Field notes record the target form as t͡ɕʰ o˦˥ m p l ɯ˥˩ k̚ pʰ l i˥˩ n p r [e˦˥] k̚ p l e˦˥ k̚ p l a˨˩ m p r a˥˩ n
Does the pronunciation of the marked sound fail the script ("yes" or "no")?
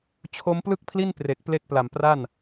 yes